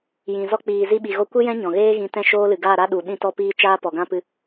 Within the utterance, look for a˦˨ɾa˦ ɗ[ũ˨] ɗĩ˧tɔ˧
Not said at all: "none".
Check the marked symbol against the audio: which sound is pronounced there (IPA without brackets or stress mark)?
u˨